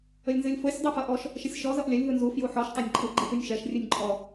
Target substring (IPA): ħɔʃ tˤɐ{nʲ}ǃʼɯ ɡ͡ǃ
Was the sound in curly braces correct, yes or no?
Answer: yes